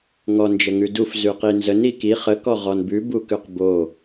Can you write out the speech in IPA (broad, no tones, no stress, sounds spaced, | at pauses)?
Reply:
ŋ ɔ n d͡ʒ ə ŋ ʉ d u f z ʉ q i n z ə n i k i χ ə k ɔ ʁ ɔ n b ʉ b u k ʉ q b o